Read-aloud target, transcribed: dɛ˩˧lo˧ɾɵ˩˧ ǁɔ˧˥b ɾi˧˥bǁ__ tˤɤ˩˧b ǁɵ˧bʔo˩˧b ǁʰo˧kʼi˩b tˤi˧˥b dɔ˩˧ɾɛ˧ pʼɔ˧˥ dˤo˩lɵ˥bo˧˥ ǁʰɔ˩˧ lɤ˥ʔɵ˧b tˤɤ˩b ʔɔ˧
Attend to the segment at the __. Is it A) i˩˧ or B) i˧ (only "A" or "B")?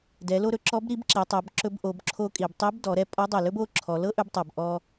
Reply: A